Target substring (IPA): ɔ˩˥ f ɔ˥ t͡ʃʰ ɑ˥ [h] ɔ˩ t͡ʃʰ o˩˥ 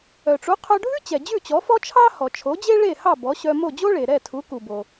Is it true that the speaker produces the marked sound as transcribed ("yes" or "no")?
yes